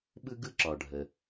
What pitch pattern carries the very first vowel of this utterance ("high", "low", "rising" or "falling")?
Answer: high